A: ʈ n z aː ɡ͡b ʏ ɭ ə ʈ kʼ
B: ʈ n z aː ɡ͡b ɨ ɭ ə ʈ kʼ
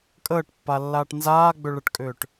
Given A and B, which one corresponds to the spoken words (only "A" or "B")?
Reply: A